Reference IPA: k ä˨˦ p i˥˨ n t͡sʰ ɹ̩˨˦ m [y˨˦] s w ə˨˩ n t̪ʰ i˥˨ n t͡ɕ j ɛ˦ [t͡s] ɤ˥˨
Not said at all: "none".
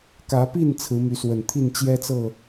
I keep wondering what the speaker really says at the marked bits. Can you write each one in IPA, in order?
y˨˦, t͡s

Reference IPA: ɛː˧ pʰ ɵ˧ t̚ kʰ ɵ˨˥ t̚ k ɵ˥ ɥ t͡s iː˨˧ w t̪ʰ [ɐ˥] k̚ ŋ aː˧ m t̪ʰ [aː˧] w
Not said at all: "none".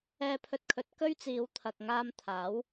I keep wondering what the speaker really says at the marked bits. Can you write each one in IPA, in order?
ɐ˨, aː˨˥

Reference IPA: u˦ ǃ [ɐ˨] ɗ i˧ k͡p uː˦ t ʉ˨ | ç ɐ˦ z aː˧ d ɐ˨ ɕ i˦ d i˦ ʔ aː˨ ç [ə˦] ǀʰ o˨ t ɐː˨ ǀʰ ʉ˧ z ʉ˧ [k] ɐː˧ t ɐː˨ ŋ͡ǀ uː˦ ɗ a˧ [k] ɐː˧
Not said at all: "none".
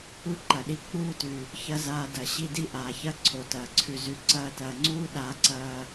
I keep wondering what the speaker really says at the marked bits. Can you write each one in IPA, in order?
ɐ˨, ɐ˦, ǀ, ǀ

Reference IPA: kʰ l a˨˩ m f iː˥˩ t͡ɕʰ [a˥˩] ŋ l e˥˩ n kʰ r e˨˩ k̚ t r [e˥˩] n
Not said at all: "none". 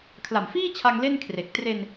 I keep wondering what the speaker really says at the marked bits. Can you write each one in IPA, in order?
a˧, e˧

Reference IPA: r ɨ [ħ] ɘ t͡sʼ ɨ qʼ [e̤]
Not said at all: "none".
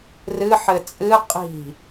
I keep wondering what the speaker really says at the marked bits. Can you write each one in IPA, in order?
ħ, i̤

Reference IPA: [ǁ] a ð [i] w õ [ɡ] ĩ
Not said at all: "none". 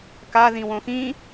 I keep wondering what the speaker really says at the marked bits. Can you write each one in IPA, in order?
k, ĩ, x

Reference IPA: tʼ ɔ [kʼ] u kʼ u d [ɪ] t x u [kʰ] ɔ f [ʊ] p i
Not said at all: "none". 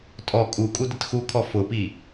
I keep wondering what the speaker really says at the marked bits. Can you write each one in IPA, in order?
kʼ, ɪ, kʰ, ʊ

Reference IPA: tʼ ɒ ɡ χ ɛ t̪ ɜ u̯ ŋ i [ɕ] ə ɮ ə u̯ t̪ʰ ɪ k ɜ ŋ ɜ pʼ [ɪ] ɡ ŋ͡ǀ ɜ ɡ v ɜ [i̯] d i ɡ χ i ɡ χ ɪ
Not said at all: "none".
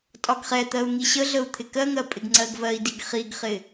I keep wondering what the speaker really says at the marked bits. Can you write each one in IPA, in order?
ɕ, ɪ, i̯

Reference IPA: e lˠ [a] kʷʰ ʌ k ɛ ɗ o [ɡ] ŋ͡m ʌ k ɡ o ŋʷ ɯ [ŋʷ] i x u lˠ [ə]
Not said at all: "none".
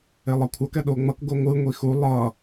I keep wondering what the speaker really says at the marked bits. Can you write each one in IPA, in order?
ʌ, none, ŋʷ, ʌ

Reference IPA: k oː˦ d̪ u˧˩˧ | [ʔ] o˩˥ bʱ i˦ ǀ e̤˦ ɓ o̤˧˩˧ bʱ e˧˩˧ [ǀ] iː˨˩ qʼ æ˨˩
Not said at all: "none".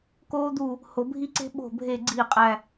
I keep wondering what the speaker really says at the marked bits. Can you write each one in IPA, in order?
h, ɡ͡ǀ

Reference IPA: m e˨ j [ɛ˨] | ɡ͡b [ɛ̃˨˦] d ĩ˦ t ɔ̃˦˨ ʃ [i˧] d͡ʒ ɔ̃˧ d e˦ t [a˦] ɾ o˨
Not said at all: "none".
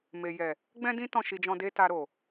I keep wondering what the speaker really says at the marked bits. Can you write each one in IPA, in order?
ɛ˨, ɛ̃˦, i˧, a˧

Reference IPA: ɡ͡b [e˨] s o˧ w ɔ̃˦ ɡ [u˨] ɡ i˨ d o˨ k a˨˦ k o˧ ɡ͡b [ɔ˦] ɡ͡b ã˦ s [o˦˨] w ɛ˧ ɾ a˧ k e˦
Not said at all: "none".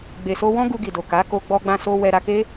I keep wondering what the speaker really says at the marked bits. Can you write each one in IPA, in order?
e˨, u˧, ɔ˦, o˦

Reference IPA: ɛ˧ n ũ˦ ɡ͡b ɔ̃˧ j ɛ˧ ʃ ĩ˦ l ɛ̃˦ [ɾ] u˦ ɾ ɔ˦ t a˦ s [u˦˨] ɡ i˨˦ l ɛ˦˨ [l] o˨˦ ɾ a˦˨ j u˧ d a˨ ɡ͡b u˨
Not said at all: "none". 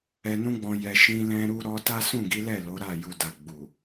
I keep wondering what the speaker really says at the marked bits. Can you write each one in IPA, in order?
ɾ, ũ˦˨, l

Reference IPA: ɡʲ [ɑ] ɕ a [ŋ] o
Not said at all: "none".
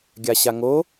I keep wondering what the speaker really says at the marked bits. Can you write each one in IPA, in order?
a, ŋ

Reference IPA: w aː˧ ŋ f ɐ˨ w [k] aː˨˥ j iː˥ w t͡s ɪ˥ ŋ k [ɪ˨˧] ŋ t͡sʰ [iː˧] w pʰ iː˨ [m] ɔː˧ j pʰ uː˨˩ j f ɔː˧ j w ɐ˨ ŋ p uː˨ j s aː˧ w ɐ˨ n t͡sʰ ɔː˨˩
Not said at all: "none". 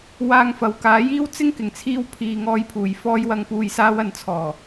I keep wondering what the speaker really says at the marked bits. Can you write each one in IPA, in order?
k, ɪ˨˩, iː˧, ŋ

